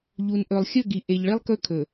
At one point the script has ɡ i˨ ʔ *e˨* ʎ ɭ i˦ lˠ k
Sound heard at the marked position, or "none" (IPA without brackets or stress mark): e˨